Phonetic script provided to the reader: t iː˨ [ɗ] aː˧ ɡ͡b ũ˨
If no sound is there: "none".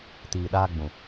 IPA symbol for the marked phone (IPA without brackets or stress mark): ɗ